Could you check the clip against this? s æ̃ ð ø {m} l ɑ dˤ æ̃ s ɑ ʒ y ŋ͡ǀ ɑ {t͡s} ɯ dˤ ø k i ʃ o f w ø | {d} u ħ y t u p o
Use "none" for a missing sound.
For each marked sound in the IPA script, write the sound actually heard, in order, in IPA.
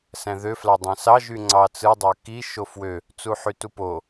f, t͡s, t͡s

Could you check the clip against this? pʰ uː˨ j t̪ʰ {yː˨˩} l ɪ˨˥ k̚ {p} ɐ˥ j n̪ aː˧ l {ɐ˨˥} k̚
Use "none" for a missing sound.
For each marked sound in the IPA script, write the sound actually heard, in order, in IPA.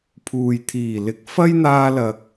iː˨˩, f, ɐ˨

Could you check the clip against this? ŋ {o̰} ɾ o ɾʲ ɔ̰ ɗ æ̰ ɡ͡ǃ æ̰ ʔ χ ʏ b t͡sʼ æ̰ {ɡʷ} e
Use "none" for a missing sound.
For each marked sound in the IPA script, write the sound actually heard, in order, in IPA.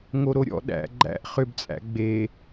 o, ɡ͡b

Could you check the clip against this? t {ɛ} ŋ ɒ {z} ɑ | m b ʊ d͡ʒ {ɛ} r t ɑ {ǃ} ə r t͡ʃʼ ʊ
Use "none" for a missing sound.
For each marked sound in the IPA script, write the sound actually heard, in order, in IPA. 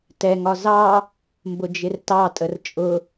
ɛ, z, ɪ, tʼ

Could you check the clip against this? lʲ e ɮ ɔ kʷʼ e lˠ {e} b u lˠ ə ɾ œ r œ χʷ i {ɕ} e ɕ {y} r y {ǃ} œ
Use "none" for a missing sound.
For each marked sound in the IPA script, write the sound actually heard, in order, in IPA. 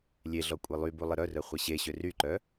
y, ɕ, ø, ǃ

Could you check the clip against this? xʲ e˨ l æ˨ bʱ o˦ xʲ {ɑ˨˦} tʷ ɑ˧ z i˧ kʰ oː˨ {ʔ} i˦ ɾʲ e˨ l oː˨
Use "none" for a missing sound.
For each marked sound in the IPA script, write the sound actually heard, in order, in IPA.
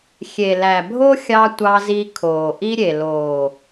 ɑ˧, ʔ

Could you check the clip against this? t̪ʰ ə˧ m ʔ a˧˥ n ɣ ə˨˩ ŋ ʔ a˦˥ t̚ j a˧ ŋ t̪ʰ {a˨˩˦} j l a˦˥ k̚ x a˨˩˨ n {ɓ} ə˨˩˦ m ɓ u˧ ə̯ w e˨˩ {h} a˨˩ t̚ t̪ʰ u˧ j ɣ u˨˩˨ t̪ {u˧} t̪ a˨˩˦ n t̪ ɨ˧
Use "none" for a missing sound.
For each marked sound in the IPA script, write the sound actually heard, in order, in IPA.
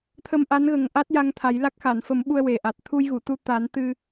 a˨˩˦, f, ʔ, u˧

